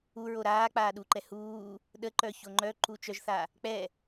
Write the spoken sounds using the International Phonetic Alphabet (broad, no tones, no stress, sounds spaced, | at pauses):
u ɹ o ɾ aː k͡p aː ɗ u ǃ ɛ h uː | ɗ ə ǃ œ ç o ŋ͡ǃ œ ǃ u t͡ʃ œ ʒ θ a | k͡p ɛ